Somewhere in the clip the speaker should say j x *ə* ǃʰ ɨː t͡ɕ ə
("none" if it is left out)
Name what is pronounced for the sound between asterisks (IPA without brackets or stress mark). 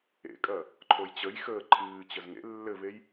əː